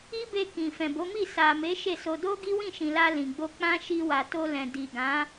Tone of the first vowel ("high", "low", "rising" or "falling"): high